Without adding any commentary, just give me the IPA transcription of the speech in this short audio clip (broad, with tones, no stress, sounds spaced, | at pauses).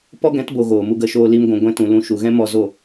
p ɔ˦ ɡ ɛ̃˨˦ t b o˨ ɣ oː˨ m u˧ ɡ ə˧ ʃ oː˧ l i˧ m ɡʷ ũ˨ ɡʷ ɛ̃˧ t ũ˨ l ũ˧ ʃ u˨ ɣ ɛ̃˦ m ɔ˧ z o˦˨